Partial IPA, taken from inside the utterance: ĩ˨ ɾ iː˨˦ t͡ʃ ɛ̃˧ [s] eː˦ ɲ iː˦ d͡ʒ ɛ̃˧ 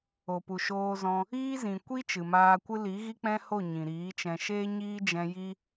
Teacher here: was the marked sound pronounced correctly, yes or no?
no